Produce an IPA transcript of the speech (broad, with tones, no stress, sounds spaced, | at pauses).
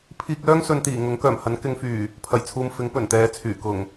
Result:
pʰ iː˧ k̚ l œː˥ ŋ s ɵ˨˧ n t̪ iː˨˩ ŋ ʊ˨˥ ŋ k œː˨˩ m h ɐ˨˥ n k ɪ˨˧ ŋ f yː˨˩ | pʰ ɐ˨˩ j t͡sʰ uː˨ m f ɪ˨˥ ŋ p ɵ˨˩ n t̪ ɛː˨˧ t͡sʰ yː˨˩ k ʊ˨˩ ŋ